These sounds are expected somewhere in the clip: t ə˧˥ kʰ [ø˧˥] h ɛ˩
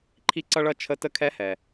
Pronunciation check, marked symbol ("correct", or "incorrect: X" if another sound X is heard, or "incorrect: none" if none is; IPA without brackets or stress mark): incorrect: ɛ˧˥